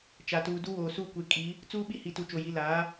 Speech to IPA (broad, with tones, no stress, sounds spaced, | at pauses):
t͡ʃ a˨ t uː˨ d u˦ w oː˨ s uː˦˨ kʷ e˨˦ kʼ i˨˦ | t͡s uː˦ ɓ i˦ h i˨ t u˨ t͡ʃ o˨ j i˨˦ l aː˨˦